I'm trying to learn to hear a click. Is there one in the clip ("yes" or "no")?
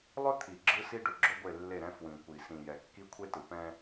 yes